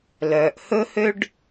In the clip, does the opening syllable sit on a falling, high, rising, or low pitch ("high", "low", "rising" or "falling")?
low